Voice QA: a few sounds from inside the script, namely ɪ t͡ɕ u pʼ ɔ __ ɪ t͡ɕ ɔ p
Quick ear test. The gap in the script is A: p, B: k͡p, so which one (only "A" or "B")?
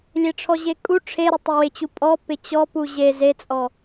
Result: A